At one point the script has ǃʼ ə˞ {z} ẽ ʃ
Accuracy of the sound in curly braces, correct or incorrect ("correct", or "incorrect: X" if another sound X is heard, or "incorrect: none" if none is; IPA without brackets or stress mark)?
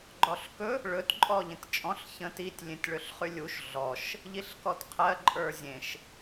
incorrect: zʲ